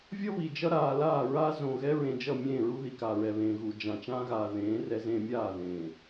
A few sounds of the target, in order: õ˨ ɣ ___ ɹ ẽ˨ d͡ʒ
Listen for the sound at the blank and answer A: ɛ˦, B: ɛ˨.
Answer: A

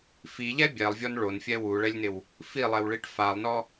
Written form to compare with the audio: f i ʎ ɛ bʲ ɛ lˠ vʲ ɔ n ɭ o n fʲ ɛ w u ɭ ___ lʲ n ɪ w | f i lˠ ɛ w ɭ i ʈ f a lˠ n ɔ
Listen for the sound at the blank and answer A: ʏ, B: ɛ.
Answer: B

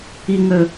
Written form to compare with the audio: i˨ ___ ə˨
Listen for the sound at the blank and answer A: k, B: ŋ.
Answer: B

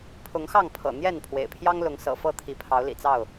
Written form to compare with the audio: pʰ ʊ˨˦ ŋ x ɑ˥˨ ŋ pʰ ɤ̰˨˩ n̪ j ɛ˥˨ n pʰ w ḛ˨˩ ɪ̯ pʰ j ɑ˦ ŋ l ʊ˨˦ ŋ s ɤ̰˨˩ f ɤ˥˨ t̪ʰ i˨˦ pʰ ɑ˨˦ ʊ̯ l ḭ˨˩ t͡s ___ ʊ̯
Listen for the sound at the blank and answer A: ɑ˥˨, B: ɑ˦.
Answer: A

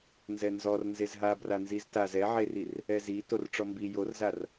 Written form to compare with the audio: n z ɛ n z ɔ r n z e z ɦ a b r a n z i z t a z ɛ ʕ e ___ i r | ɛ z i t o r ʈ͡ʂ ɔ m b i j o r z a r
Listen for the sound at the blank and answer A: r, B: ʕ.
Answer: A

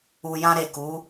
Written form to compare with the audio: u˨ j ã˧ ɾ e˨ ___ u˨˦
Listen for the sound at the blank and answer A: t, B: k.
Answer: B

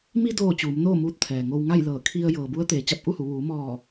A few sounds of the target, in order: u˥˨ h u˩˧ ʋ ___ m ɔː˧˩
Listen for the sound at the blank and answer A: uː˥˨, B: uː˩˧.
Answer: B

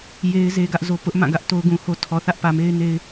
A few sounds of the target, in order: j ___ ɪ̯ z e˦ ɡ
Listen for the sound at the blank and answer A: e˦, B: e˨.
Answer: A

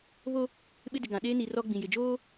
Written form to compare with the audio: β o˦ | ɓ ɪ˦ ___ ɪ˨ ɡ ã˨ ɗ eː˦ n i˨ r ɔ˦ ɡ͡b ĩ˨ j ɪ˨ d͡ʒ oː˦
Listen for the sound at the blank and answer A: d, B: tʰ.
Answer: A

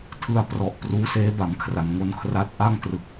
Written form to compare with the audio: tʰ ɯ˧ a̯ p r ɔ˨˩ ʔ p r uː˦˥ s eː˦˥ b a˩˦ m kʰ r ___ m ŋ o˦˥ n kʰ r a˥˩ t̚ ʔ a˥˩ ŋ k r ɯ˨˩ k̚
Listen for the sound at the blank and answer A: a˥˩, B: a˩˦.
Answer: B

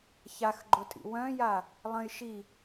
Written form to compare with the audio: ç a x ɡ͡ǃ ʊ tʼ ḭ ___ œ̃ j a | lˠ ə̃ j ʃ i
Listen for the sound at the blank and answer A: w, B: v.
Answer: A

